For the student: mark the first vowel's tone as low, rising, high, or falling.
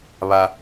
high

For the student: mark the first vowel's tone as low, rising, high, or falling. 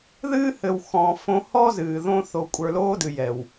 high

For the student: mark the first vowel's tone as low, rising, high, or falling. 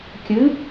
rising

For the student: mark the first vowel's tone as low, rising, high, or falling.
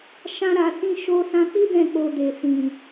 high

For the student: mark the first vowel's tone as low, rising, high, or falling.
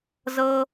high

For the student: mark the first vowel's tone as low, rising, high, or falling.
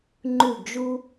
falling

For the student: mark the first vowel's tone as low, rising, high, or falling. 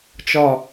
falling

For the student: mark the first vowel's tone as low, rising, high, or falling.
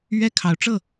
high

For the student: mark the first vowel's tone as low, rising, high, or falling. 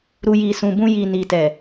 low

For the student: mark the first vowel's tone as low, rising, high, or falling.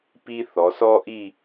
high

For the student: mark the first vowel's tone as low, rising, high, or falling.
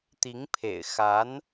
rising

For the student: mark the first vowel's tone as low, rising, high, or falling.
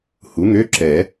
rising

